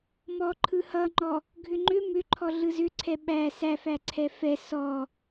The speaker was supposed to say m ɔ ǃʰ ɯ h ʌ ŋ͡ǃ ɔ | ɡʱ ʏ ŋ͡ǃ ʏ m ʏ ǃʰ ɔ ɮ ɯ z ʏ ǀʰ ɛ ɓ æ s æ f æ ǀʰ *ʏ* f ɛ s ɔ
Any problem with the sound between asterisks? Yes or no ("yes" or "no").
yes